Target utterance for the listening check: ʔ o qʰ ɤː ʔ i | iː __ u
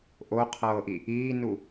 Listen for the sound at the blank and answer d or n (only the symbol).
n